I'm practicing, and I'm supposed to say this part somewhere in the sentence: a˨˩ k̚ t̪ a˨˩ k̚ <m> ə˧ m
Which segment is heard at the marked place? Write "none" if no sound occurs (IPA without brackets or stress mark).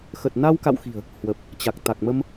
m